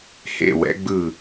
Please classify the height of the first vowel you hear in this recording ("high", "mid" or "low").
mid